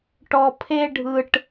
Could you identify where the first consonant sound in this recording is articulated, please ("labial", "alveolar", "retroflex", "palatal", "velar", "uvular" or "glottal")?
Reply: retroflex